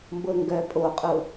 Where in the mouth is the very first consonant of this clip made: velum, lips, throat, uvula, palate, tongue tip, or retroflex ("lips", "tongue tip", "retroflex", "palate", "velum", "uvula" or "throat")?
lips